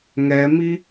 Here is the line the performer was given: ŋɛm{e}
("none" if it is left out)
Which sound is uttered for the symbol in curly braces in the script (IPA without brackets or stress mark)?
i